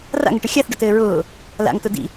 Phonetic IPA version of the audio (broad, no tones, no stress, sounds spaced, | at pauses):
r a̰ ŋ ə ʈ ɘ xʲ a θ ɖ ʊ t ɘː ɹ ʊː | l a̰ ŋ t ʊ d ḭ